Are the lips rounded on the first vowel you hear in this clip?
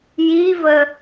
no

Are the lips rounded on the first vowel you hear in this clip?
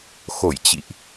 yes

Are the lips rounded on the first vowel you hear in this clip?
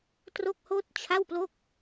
yes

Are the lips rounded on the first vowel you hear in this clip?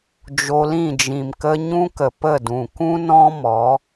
yes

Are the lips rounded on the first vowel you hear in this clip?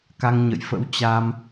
no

